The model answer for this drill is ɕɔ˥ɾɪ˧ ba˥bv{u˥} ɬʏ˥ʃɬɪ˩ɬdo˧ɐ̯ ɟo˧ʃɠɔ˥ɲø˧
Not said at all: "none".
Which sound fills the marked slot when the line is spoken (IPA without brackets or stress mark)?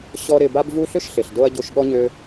u˥